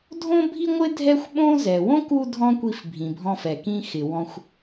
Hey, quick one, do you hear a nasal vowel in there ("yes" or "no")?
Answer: yes